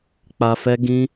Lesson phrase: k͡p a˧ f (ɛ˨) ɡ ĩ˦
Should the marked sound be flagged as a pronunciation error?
yes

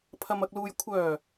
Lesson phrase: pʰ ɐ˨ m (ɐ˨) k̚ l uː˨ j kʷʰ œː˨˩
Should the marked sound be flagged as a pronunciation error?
no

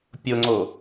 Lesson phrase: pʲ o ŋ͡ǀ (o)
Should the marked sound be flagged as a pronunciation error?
no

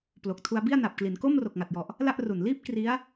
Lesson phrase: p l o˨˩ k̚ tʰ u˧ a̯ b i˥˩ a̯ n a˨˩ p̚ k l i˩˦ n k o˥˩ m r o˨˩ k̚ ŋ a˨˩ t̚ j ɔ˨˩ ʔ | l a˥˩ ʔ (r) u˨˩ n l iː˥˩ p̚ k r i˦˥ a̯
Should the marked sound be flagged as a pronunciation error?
no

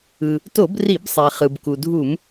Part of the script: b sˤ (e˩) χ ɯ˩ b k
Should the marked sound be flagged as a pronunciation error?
no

